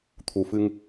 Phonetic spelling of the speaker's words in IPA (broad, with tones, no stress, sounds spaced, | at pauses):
t̪ʰ u˨˩ f ɨ˧ ŋ